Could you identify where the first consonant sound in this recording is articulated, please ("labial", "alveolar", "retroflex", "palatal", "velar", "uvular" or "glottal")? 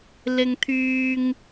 alveolar